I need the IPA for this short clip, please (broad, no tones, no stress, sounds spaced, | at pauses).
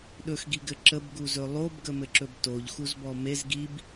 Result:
ɗ ɵ x ɡ i ɡ ɘ ǁ ə b ɡ u z ɵ lˠ o b ɡ ə m ɘ ǁ ɵ b t o ʎ x u z b ɔ m e z ɡ i b